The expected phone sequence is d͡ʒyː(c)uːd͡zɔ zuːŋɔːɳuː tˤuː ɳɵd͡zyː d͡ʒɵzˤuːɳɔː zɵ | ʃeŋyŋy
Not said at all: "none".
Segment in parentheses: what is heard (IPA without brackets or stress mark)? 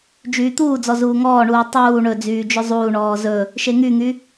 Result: t̪